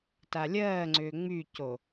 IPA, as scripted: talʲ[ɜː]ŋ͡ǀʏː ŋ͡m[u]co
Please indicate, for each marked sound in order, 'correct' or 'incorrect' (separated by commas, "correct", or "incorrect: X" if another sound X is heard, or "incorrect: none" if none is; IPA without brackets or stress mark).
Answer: correct, incorrect: y